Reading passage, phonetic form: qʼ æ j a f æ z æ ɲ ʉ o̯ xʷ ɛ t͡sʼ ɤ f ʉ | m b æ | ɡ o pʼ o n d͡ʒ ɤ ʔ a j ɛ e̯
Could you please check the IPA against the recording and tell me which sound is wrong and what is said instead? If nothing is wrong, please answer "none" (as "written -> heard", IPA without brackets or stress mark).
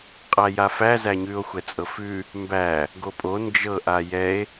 none